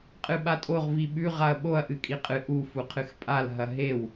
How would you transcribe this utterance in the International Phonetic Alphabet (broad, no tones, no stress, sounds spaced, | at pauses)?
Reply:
qʼ ɨ ɓ a tʼ o ʁ v i ɓ ʉ ʁ a ɐ̯ ɓ o ɐ̯ ʔ ɨ kʼ i qʼ ɨ ʔ u f u qʰ ɨ x pʼ a l ɦ ɐ ɦ e w